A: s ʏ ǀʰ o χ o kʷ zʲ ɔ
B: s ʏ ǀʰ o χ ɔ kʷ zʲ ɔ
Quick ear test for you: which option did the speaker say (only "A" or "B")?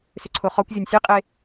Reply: B